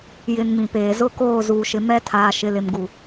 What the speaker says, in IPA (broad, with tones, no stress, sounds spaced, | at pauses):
j ɪ˨ n m ĩ˨ p eː˨ z ʊ˦ k oː˦˨ z uː˨ ʃ ɪ˨ m ɛ˦ tʰ aː˨ ʃ ɪ˨ l ɪ˨ m ɡ u˨